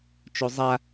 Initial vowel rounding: rounded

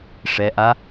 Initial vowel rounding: unrounded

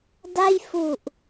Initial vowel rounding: unrounded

